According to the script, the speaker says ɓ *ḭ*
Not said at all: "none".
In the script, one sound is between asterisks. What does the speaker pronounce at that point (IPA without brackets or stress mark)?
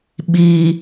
i